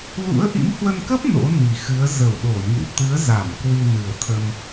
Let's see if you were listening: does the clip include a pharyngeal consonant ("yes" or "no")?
no